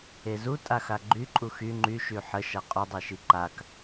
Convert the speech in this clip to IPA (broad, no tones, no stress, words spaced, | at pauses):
ezu tʼaxaɡ͡ǃy ǃʼuxy ŋ͡ǃy ʃyħə ʃaqʼu dˤeʃiǃak